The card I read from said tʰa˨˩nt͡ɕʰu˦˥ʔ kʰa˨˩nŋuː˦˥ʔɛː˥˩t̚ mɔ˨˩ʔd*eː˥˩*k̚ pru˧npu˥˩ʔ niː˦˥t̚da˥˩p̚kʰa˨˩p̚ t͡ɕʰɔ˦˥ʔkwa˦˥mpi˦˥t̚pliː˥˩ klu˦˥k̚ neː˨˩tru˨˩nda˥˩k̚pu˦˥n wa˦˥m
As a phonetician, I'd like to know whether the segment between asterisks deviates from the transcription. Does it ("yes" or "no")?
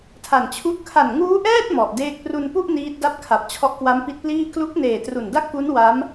no